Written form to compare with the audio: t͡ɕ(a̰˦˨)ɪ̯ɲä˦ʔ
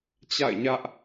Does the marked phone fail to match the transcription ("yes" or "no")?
no